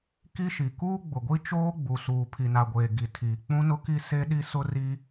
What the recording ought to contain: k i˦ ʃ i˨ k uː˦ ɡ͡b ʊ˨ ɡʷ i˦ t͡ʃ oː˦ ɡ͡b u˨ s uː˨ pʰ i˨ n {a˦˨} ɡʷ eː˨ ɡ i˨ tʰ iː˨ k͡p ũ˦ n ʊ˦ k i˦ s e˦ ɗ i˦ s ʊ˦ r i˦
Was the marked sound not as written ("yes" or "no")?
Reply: yes